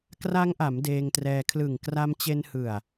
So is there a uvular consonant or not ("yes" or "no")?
no